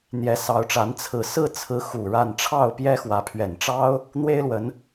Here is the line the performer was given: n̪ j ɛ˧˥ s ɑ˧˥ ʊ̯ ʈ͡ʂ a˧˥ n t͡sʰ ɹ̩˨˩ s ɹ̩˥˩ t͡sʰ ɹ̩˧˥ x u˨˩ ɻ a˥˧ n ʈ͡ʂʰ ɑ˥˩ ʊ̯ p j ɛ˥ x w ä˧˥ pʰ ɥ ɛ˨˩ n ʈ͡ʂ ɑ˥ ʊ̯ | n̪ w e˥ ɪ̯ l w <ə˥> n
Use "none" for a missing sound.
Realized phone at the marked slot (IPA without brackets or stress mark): ə˧˥